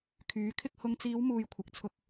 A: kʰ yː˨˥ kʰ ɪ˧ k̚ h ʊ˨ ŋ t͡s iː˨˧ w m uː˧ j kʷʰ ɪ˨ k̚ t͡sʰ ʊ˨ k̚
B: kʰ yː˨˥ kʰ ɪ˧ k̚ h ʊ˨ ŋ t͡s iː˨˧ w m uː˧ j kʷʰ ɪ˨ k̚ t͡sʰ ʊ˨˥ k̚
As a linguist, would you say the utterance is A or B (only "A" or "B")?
A